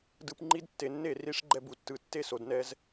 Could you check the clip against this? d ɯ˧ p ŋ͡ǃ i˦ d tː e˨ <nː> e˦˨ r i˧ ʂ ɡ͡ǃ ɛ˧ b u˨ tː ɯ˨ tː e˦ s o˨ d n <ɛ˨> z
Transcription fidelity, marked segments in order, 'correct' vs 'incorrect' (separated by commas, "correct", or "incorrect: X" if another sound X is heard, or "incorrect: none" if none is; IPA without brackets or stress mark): correct, incorrect: ɛ˧